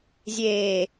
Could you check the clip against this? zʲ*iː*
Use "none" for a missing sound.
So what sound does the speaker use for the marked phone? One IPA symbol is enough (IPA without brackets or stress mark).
eː